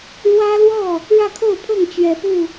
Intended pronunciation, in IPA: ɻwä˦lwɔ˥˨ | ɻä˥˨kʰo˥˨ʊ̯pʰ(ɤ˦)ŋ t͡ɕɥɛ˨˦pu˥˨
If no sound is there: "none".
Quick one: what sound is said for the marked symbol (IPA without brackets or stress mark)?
ɤ˥˨